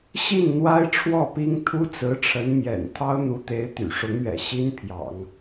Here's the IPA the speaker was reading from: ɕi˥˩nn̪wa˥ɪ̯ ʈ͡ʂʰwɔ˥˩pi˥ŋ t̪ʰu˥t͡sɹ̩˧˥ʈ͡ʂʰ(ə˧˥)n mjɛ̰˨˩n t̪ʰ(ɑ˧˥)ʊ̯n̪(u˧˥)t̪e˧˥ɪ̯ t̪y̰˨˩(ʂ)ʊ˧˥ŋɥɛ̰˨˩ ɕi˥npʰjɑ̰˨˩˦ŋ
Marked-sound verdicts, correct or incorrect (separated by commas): correct, incorrect, correct, correct